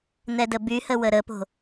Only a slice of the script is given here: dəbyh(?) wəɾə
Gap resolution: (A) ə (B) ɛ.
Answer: A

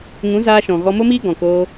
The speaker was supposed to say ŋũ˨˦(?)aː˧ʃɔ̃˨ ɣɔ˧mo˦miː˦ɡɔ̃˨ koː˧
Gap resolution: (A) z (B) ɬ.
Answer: A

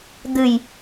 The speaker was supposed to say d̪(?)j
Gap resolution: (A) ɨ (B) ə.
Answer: A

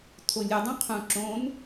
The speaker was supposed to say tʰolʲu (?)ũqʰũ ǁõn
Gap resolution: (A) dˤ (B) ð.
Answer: A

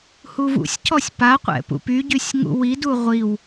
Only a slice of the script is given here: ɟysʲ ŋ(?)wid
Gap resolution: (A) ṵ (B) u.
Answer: A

